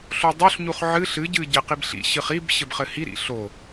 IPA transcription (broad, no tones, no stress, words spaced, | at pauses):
ɬodˤoɬɲuχ ʕɨɬ ɨɟɨɟɘ qibɬḭ ɕɨχib ɕɘbχɘhi ɾḭɬo